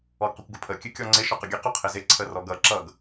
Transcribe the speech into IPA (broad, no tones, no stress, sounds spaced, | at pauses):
ɔ ɡ q ɪ kʷ ɡ ʊ pʰ ə kʲ ɨ kʲ ɔ ŋ͡ǀ ɪ ʃ ɔ q ʊ ɡʲ ɨ q ʊ qʰ ɪ z ɪ ǀʰ ə r ɔ ɡ ʌ ǁ ʌ ɡ